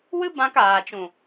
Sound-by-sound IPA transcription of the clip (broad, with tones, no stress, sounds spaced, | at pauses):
w ɨ˦ b ã˧ k aː˨ t͡ʃ ũ˨